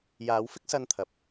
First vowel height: low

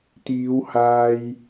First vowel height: high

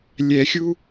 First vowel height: mid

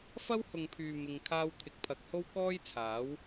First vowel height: low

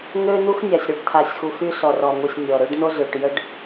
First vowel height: mid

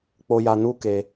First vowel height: mid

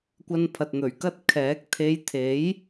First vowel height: low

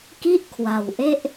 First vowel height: high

